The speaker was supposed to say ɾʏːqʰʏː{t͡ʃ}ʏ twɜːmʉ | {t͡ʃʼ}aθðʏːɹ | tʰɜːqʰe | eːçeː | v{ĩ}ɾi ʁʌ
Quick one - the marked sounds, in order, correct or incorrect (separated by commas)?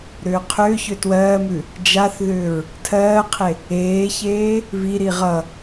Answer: incorrect, incorrect, incorrect